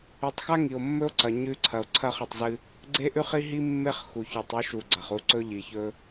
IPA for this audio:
ʉ˨ tˤ x a˦ ŋ i˨ o̯ mː ɵ˦ o̯ ǀ ɐ˨ ɲ ʉ˦ ǀʰ ɐ˨ o̯ ǀʰ ɐ˦˨ χ ɨ˨ tˤ z ɨ˦ | ɡ͡ǀ e˦ ʔ ʉ˦ χ i˦ ɦ i˦ mː e˦ χ x u˨ ç ʉ˨ tˤ ʉ˦ ʃ u˨ ɡ͡ǀ ɐ˨ χ u˦ ǀ ɵ˦ ʎ i˨ ç ɵ˦

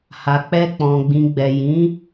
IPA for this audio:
h a˧ k͡p ɛ˦ k͡p ɔ̃˧ ɡ͡b ĩ˧ ɡ͡b ɛ˨ j ĩ˨˦

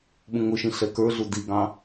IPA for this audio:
ɓ ũ ŋ ʊ ʃ ĩ ɬ ɛ k ə˞ ɮ u d i ɡ ɑ̃

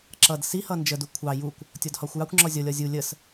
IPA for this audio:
ǁ ʌ d s i h ʌ n d͡ʒ ə d u kʷʰ ɑ j u kʷ | tʲ ɔ d h ɒ xʷ j ɑ kʷ ŋ͡ǁ ɔ zʲ ɔ lʲ ɒ zʲ u lʲ ə s

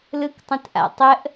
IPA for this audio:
l ɯ k tˤ ə̃ t ʔ a̰ tˤ ə ʔ

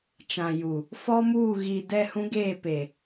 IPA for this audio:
t͡ʃ ã˨ j u˨ | f ɔ˦ m uː˦˨ ɣ i˨ d ɛ˦˨ h ũ˦ ɡ eː˦˨ p e˨

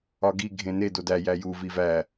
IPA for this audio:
ɒ ɡ i ɡʱ ẽ n e d o d æ j æ j u v i v æ

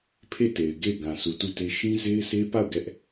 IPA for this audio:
pʰ e˦˨ t e˨ ɪ̯ ɡ e˦˨ ɪ̯ ɡ ã˨ sʰ u˨ t u˦˨ t e˦ ʃ ĩ˦ z e˦ ɪ̯ sʰ e˦ p a˦˨ ʊ̯ ɡ ɛ˦ ʔ

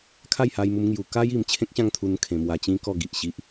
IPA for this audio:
kʰ a˥˧ j h a˧ j m u˧ m ŋ j u˧ k a˦ j i˧ m t͡ɕʰ ẽ˦ k̚ ɕ ã˥˧ ŋ t̪ʰ u˧ n kʰ ẽ˧ m w a˧ t͡ɕ ĩ˦ k ɔ˥˧ ɡ i˨ ʔ ɕ i˦ ʔ

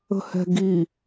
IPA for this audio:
ə̤ h ɛ̤ ɡ i

